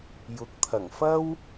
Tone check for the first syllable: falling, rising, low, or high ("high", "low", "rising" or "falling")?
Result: rising